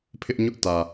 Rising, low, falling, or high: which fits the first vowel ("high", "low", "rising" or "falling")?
high